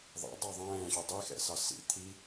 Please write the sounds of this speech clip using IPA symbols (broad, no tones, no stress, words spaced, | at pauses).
ðˤɛ̰ dˤɑðˤɛ̃ːɕu dˤixɛ̰sɑ sḭ t̪ʰi